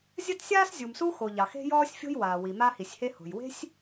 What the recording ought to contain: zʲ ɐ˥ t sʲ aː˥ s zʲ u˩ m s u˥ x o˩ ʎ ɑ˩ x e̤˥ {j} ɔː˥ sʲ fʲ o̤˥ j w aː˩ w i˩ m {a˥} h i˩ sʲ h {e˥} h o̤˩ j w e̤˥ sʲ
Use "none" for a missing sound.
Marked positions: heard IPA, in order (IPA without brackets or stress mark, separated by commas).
j, a˥, e˥